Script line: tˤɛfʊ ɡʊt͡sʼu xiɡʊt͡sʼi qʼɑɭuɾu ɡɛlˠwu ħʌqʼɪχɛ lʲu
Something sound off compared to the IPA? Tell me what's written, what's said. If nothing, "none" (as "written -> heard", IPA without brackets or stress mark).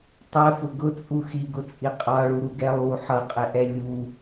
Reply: χ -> ʔ